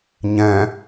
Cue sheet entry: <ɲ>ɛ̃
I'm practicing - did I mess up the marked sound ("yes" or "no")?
no